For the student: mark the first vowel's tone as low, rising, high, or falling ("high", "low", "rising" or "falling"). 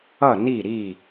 falling